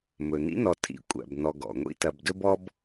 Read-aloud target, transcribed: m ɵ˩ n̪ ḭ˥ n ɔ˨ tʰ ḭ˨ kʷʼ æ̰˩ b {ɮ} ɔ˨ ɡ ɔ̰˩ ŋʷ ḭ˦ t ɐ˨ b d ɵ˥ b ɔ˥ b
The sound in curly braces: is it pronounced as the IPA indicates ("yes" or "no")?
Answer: no